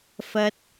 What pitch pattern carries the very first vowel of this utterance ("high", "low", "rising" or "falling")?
high